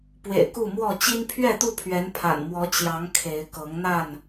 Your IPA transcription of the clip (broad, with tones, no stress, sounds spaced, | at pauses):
p w ḛ˨˩ ɪ̯ k u˥˨ m w ɔ˥˨ t͡ɕ i˦ n pʰ ɥ ɛ˥˨ t̪ u˥˨ pʰ ɥ ɛ˨˦ n pʰ a̰˨˩ n m w ɔ˨˦ t͡ɕ j ɑ˨˦ ŋ kʰ e˨˦ ɪ̯ k ɤ˨˦ ŋ n̪ a˥˨ n